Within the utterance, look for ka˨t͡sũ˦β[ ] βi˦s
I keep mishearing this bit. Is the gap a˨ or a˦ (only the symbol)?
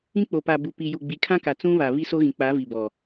a˨